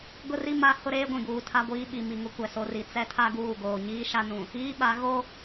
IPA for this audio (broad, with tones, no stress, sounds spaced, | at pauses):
ɡ ʊ˦ r i˦ m a˦ h ʊ˦ ɾ eː˦ ɡʷ ĩ˨ ɡ uː˨ tʰ a˦ ɡʷ iː˦ ɓ i˨ m i˨ ŋ ʊ˦ kʷ ɛ˨ s o˦ r i˨ t͡s ɛ˦ tʰ a˦ ɡ uː˦˨ ɡ oː˨ ɲ iː˦ ʃ a˦ n ũ˨ | iː˦ ɓ a˨˦ ɣ o˦